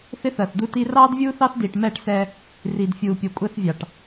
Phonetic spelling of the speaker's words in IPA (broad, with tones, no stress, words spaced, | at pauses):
θɪ˦θɜ˨θdu˦ti˦ rɑː˦dvʲuː˦θɑ˦θ diː˨ʈmɛː˦˨ʈ sɛː˦ | riː˨dfʲuː˨ pʲu˨kʷʼɛ˦θvʲɑ˨ʈ